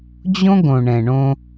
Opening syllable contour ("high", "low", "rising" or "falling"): high